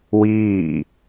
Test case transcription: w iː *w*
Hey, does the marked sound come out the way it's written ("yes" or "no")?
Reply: no